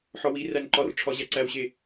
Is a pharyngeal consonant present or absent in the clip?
present